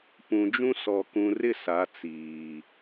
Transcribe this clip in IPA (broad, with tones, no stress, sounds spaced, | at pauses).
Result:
p ũ˨ d͡ʒ ũ˦ s ɔ˨ k ũ˨ r ɪ˦˨ s a˨˦ t͡s iː˨